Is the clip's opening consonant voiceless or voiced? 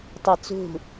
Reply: voiceless